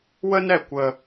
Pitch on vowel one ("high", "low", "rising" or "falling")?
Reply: high